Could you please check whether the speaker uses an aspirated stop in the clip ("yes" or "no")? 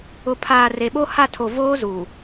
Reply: yes